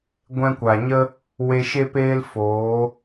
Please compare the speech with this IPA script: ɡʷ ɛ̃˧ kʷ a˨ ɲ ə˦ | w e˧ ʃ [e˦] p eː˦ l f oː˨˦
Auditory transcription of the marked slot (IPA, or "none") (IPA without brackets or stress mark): e˦